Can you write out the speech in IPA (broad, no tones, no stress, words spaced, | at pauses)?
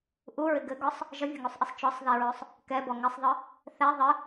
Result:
ʔuɹɪ ɡɘɡɔsˤ | ʒʌvʲʌŋusˤʔɘsˤ t͡ʃɔsˤðiɹosˤ | kɛbɔ ŋɪsˤðˤɯ | θɛ ðˤɘ